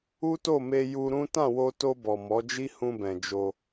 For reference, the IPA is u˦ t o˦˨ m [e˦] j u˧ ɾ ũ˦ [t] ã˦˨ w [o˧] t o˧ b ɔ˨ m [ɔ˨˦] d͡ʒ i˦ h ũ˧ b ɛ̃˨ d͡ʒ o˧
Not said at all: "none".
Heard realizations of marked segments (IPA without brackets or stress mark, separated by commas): e˧, t, o˧, ɔ˨˦